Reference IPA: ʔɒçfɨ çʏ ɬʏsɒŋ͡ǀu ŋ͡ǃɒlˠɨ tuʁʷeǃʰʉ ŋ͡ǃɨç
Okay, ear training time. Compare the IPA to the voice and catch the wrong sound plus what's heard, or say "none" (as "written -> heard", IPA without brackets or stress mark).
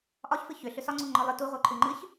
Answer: none